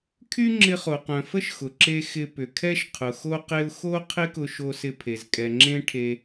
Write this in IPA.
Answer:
kʰ y˦ ŋ͡ǁ ɪ˧ χ o˨ q œ̃˨ f ə˦ ʃ x ʊ˨ ǁ e˧ x ɪ˧ p ʏ˨ kʰ ɛ˦ ʃ qʰ ʊ˨ x o˦ q e˦ ʊ̯ x o˦ qʰ ɪ˦ k ʊ˧ ʃ o˧ s ɪ˧ pʰ e˨ z kʼ ɛ˨ ŋ͡ǁ ẽ˦ ʈʰ e˧

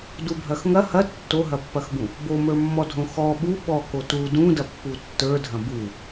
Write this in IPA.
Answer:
d u bʱ ɐ x ŋ ɐ h ɐ tː o ɦ ɐ pː ɐ x b ũ | b o m ə˞ mː ɔ dʱ õ x ɔ ɓ u ɓ ɔ k o t u d ũ d ɐ pː u tː ə˞ dʱ ɐ̃ b u

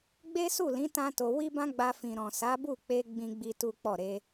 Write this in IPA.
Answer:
ɡ͡b e˦ s u˦˨ l ĩ˨˦ t ã˦ t o˧ w i˦ b ã˦ ɡ͡b a˧ f ĩ˨ ɾ ɔ̃˨ s a˨˦ b u˦˨ k͡p e˧ ɡ͡b ĩ˦ ɡ͡b i˦ t u˦ k͡p ɔ˦˨ ɾ e˧

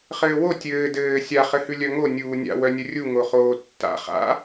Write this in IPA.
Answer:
χ ɘː w o tʲ ɘː d ɘː sʲ a χ ɘ h ʉ lʲ œ ŋ o nʲ uː nʲ a̰ w œ nʲ ə rʲ u ŋ o χ oː tː a̰ χ a̰

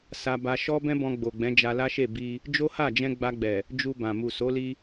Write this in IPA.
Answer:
s a˦ b a˧ ʃ ɔ˦ b ɛ̃˦ b ɔ̃˧ ɡ͡b o˨ ɡ͡b ɛ̃˨˦ d͡ʒ a˧ l a˦ ʃ e˦˨ b i˧ | d͡ʒ o˦ h a˦˨ d͡ʒ ɛ̃˧ ɡ͡b a˧ ɡ͡b ɛ˨ | d͡ʒ u˧ b ã˨ m u˨ s o˨˦ l i˧

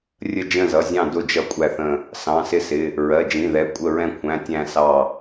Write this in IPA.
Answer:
rʲ ə˦˨ d͡ʒ ə̃˦˨ z ʌ˩˧˩ zʲ ɑ̃˦˨ d ʊ˦˨ d͡ʒ ʌ˦˨ kʷʼ æ˦˨ θ ə̃˦˨ | s ɑ̃˩˧˩ s ɪ˦˨ s ɪ˩˧˩ | ɹ ɜ˩˧˩ d͡ʒ ĩ˩˧˩ ð ɛ˩˧˩ kʷʼ ə˦˨ ɹ ɛ̃˦˨ kʷʰ æ̃˩˧˩ tʲ æ̃˦˨ s ɑ˦˨

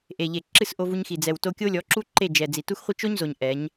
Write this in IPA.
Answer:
ʔ e˨ ʎ e˨ ǁ ɨ˦˨ s ʔ o˧ v u˧ ɲ x i˨ d͡z ɛ˨ w t o˧ kʲ o˦ lʲ ɔ˨˦ ǁ u˦ ǃ e˦˨ d͡ʒ ɛ˨ d͡z i˨ t u˦ x χʷ i˦ t͡ʃ o˦ ɲ z o˨ ɲ ʔ ɛ˨˦ ɲ

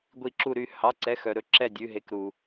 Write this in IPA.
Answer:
ɡʷ i˧˩ ǁ u˧˩ ɾ y˧˩ h ɑ˩˧˩ ǀ ɛ˩˧˩ x œ˩ ɾ ɵ˧˩ ǁ ɛ˧˩ dʲ ʉ˩˧˩ ɦ e˩˧˩ k ɾ u˩

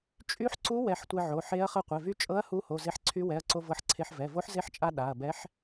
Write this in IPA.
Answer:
t͡ʃʼ y˧˥ ħ ǀ u˧˥ w ɛ˧ ħ tʷ e˧ ʕ o˩˧˩ ħ e˧˥ ɐ̯ χ ɤ˧ qʷ ɛ˩˧˩ v y˧˥ t͡ʃʼ ɤ˧˥ ɐ̯ h u˧˥ h o˩˧˩ z e˧ ħ ǀʰ y˧˥ w ɛ˩˧˩ ɐ̯ ǀ o˧ v ɤ˧ ħ ǀʰ e˧ ħ v ɛ˩˧˩ v o˧˥ ħ z e˧˥ ħ t͡ʃʼ a˧ ɗ a˩˧˩ ɐ̯ b ɛ˧˥ ħ

